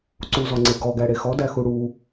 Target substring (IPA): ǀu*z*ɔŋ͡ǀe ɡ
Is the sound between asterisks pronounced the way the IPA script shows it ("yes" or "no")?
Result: yes